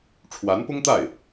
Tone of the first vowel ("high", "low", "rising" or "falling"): rising